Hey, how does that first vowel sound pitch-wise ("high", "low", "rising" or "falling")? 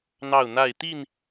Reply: falling